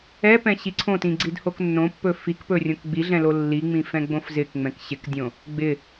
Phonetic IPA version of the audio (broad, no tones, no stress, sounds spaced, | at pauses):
ɛ p ɛ̃ ɕ i ǀʰ õ t ĩ ɡ͡ǀ i d h o k nː õ pː ɵ f i k p ɵ rʲ õ k ɡ͡b i ɮ ɛ̃ l o lː i ŋ͡m ĩ f ɛ̃ ɡ͡b õ f z ɪ k ŋ͡m ɛ̃ k ɕ ɪ k dʲ õ | ɡ͡b ɪ